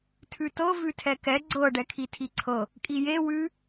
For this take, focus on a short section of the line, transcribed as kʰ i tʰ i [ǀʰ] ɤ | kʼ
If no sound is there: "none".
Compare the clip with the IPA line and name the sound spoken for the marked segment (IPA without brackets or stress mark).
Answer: ǀʰ